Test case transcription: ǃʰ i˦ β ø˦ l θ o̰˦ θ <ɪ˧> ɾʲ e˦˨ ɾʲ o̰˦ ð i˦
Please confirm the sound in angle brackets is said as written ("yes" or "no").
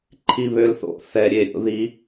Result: no